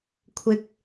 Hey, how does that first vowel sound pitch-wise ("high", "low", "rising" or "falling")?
low